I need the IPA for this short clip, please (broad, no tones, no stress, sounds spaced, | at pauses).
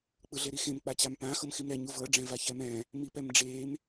k͡p ɯ ɮ e ɾ i x ẽ m k͡p a t͡ɕ a m p ã x ɤ m x i m ɾ ɛ ɲ u v ɤ ɖ͡ʐ ɛ̃ v a ç ɛ m ɛ̃ː | m i p ɛ m ɖ͡ʐ eː m